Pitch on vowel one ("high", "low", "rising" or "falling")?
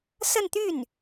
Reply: falling